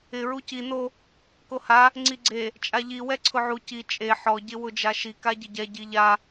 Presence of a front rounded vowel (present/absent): absent